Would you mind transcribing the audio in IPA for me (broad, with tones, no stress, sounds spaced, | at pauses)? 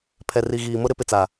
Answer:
pʰ ɛ˨ r i˨ ɣ iː˨ m ʊ˦ ɾ ɪ˨˦ p ɪ˨ t͡s a˨